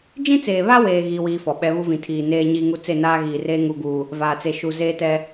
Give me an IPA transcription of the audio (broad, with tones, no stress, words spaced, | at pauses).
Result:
d͡ʒĩ˦t͡seː˨βa˦weː˨ ɣiː˦wiː˦fɔ˨ ɓɛ˨˦βu˦vĩ˨ tʰiː˨neː˦ɲiː˦ŋu˦ t͡se˦˨naː˦ɣiː˨reː˦ ŋu˨ɡuː˨ | vaː˨t͡se˨ ʃu˨ zeː˦tɛ˦